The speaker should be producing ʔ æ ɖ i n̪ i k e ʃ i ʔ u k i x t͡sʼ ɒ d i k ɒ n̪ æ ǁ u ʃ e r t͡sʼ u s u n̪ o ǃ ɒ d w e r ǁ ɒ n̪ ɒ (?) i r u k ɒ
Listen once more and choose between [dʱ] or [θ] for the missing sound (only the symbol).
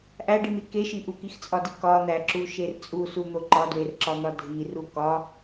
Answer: dʱ